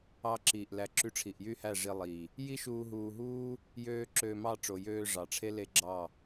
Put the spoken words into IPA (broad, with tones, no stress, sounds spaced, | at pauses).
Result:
ɑ˧ ǁ iː˨ ʔ l æ˨ ǁ y˧ ʈ͡ʂʰ i˨ ʔ j y˦ h æ˦˨ ʐ i˧ lˠ iː˨ | j i˦ ʃ uː˧ ɦ uː˧ ɦ uː˦ | j øː˧ ǁ øː˧ m ɑ˦˨ ʈ͡ʂ o˨ j øː˧ ʐ ɑ˨ ʈ͡ʂʰ e˦ l e˦ ɡ͡ǁ ɑ˦˨